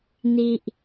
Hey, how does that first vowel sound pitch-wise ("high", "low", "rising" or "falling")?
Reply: low